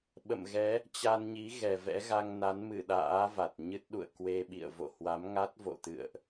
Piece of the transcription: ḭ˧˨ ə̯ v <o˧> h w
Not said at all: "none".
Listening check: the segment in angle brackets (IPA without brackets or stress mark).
o̰˧˨